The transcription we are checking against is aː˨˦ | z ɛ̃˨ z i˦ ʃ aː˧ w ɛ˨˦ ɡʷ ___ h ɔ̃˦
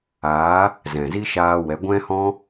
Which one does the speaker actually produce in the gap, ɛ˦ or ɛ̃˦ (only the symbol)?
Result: ɛ̃˦